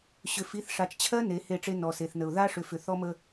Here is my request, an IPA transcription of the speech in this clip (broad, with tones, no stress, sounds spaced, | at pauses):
ɕ ʏ˨ f i˨˦ θ ʂ a˨ t͡ʃ t͡ɕʰ ɜ˦ n e˨˦ h e˦˨ ʈ͡ʂ e˦ n ɔ˨ s e˨ θ n ə˨ ʊ̯ ð a˦ ʂ ʏ˨ f ʏ˨ θ ɔ˦ m ə˦